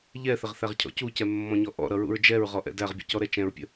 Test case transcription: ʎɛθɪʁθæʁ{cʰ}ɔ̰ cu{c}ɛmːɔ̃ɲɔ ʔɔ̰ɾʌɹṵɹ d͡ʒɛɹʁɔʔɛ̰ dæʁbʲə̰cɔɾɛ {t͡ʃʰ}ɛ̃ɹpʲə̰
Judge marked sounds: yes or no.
yes, yes, no

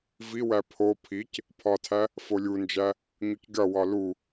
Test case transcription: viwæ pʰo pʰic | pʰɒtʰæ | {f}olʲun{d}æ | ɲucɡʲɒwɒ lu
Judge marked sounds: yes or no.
yes, no

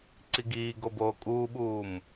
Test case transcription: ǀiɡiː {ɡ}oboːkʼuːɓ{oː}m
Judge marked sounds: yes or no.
yes, no

